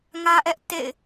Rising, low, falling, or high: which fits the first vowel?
high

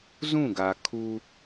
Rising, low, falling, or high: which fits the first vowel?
falling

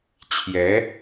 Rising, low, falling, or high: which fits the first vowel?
rising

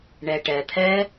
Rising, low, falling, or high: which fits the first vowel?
low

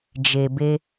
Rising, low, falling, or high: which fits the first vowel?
low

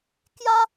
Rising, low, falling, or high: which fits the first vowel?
high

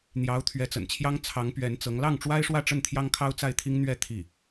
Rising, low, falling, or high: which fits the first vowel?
rising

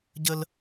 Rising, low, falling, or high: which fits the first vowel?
high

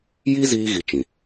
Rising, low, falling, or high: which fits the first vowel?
high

